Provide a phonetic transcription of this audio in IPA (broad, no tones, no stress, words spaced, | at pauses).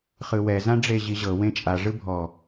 χɯwɛ zãɖ͡ʐeʑiʑɤ wẽt͡ʃʼa ʐɯbʱɔ